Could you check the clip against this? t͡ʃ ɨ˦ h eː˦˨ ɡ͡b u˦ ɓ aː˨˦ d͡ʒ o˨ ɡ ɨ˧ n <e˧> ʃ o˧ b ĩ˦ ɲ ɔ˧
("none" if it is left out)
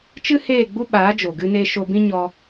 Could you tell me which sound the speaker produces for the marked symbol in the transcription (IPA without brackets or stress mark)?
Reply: e˧